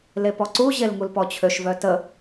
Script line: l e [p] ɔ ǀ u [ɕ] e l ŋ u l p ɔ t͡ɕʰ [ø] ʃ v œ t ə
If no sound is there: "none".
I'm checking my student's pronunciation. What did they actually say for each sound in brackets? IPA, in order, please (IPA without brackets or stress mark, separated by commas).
p, ʑ, ø